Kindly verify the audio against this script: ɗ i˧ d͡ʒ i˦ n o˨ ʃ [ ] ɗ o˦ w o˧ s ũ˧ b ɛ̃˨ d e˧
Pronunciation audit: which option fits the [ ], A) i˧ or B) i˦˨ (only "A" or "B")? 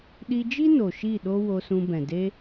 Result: B